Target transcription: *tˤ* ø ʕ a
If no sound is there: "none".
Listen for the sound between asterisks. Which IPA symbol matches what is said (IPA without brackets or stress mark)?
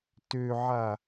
t